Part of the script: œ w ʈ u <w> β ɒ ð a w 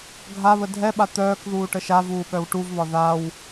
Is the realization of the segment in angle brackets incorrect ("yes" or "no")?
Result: yes